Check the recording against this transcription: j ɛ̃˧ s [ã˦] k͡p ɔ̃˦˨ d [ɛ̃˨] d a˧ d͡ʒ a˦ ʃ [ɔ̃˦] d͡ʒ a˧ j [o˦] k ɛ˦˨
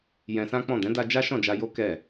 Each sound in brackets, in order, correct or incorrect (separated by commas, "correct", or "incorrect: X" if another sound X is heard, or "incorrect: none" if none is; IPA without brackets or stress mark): correct, incorrect: ɛ̃˨˦, incorrect: ɔ̃˦˨, correct